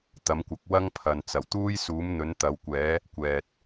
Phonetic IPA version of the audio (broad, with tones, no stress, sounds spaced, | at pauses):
t̪ ɐ˨˥ m kʷ ɐ˨˥ k̚ w ɐ˥ ŋ pʰ ɐ˨ n t͡s ɐ˨˩ w t̪ uː˥ j s uː˨˥ m n̪ ɵ˨˥ n t̪ ɐ˨˧ w kʷ ɛː˨˥ | kʷ ɛː˨ t̚